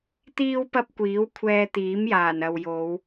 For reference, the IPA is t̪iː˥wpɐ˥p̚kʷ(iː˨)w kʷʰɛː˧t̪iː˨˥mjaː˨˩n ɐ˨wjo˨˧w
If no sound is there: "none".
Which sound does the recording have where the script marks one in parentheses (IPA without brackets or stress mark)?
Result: iː˨˥